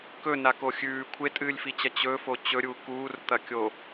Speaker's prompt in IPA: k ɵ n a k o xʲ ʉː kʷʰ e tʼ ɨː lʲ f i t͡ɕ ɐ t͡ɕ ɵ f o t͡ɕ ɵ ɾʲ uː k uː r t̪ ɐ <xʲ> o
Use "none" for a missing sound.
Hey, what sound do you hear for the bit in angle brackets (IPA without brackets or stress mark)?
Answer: kʲ